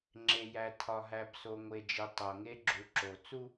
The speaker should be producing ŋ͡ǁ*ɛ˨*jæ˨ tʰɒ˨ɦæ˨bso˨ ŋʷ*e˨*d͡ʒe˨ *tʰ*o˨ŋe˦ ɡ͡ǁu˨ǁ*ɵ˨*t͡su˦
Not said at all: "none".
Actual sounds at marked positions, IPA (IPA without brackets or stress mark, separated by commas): e˨, e˨, tˤ, o˨